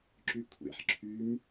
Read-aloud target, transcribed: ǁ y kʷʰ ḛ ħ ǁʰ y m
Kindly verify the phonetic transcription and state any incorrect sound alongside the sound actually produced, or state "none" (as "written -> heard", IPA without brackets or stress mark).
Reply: none